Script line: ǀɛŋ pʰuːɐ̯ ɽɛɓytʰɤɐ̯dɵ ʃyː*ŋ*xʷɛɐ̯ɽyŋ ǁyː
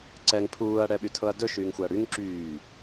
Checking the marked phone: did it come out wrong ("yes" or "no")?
no